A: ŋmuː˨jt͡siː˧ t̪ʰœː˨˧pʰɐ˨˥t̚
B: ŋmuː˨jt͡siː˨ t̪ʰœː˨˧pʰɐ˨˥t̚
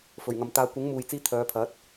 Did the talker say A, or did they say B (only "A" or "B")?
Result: A